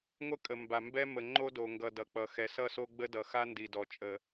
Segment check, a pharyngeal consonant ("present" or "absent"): absent